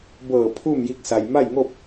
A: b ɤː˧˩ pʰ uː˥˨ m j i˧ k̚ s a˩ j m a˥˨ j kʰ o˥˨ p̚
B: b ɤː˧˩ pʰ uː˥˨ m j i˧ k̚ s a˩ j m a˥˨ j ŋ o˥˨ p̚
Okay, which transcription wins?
B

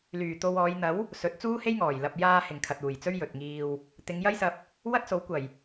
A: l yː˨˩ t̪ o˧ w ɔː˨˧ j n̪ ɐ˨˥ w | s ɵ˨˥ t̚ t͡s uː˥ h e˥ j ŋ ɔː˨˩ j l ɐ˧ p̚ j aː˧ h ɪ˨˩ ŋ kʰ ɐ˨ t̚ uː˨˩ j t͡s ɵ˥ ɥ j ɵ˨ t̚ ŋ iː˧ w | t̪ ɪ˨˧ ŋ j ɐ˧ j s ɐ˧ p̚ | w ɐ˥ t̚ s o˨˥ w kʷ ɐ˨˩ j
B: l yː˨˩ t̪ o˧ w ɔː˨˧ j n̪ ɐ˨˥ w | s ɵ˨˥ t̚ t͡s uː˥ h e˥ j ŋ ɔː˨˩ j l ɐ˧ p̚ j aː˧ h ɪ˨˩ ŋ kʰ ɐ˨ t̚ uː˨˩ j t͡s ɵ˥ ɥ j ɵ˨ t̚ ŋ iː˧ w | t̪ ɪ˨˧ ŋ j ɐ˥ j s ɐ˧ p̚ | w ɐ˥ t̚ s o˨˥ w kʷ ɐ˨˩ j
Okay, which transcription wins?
B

